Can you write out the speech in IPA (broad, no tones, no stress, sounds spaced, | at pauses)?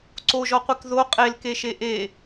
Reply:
ǀ o ʒ ɔ qʷ i k ð o qʼ e l k e ʃ e ʔ e